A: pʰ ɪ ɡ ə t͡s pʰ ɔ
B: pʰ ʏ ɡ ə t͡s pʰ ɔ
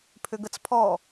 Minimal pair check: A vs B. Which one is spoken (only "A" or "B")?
B